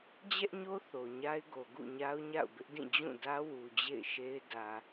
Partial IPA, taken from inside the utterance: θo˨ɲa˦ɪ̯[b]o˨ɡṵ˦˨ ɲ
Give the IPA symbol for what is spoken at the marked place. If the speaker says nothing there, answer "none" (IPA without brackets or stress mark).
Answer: ɡ